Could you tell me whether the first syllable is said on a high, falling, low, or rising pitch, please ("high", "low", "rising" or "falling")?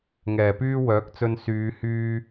low